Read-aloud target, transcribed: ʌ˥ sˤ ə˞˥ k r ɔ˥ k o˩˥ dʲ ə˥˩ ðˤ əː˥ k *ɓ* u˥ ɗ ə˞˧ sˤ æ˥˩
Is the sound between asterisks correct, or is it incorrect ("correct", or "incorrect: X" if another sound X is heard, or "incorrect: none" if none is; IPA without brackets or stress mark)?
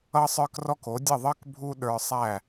incorrect: bʱ